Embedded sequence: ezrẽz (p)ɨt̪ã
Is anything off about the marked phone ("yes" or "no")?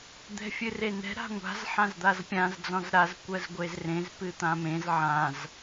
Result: no